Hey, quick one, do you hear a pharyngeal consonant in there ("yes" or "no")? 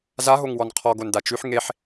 yes